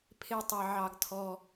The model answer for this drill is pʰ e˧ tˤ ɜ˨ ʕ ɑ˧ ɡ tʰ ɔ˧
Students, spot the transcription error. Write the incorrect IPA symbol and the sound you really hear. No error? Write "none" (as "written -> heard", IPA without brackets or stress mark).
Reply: none